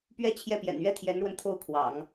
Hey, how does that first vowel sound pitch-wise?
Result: high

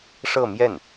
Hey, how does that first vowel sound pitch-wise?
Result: falling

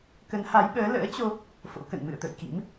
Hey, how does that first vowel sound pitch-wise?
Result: rising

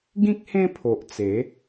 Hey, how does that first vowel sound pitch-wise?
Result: high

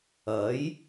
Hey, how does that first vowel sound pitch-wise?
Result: rising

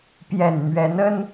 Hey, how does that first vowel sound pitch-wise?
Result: low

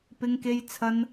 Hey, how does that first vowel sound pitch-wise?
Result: high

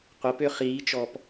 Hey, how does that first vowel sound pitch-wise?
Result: rising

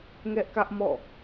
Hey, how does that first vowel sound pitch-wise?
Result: high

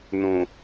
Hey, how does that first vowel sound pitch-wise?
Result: low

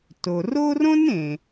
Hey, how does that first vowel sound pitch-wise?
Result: low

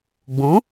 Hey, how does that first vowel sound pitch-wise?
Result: rising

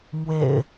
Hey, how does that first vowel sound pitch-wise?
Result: low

